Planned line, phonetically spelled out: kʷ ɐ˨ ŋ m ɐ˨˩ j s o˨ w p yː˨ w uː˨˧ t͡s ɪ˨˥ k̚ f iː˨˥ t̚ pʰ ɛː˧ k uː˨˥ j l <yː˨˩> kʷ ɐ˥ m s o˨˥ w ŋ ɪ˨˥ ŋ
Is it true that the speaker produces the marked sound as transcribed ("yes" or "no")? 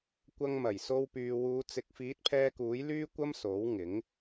no